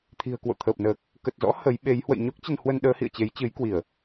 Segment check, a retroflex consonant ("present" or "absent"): absent